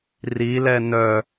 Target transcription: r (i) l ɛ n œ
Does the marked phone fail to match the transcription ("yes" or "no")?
no